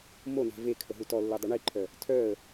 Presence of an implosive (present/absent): absent